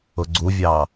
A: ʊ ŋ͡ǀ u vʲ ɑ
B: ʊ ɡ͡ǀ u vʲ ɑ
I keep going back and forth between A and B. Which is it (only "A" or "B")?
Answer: B